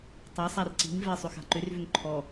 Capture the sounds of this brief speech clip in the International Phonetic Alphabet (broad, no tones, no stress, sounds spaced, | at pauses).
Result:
tˤ a sˤ a r ǀ i̤ ŋ v ɛ sˤ ʏ x a̤ ǃ ʏ r v ʏ ŋ ǃʰ ɔ